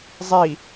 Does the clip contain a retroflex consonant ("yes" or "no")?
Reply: no